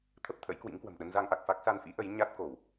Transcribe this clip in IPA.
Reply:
t̪ʰ ə˦˥ p̚ t̪ʰ ə̰˧˥ j k w ḭ˧˥ ŋ k w ə̤˨˩ m ɗ ə˧ n z a˧ ŋ ʔ a˨˩ k̚ f a˦˥ k̚ s a˧ n f ḭ˧˥ ʔ ə˨˦ j ɲ a˦˥ t̚ k o˧˩˨ w

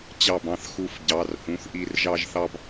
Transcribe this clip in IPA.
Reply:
t͡ɕ ɑ˧˩ b ɑ̃˧˩ θ x u˧˩ f ɟ ɑ˩˧˩ r h ũ˩˧˩ θ ʔ i˧˩ r ʒ ɑ˦ ʒ θ ɑ˦ b

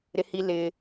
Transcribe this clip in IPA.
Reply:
ɾ ɪ˦ h i˦ l ɪ˦

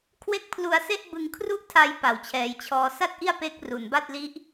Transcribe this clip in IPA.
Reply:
kʰ w e˥˩ k̚ pʰ l u˧ a̯ s e˥˩ ʔ b ɯ˧ ŋ kʰ r u˥˩ ʔ tʰ a˧ j p a˨˩ w t͡ɕʰ ɛː˩˦ j t͡ɕʰ ɔː˧ s a˥˩ t̚ ʔ i˥˩ a̯ p e˦˥ k̚ r u˨˩ n b a˥˩ t̚ l i˦˥ ʔ

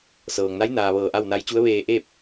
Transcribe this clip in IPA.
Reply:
s ɤː˩ ŋ n a˧˥ j n aː˩ ʋ ɤː˧˩ ʔ a˥˨ w n a˧˥ j t͡ɕ u˧˥ ə̯ ʋ eː˧ ʔ eː˥˨ p̚

